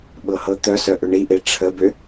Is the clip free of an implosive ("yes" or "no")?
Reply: no